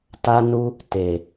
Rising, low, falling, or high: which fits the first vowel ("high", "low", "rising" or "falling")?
high